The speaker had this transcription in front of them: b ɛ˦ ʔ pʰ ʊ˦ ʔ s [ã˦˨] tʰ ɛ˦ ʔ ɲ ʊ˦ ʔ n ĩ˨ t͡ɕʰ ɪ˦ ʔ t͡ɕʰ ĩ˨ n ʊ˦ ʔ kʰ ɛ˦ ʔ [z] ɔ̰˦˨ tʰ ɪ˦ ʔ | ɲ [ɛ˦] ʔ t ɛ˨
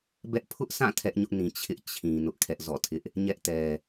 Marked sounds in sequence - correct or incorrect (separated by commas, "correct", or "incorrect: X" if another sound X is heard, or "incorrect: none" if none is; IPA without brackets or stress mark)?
correct, correct, correct